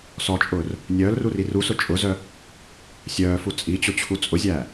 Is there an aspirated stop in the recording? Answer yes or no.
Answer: yes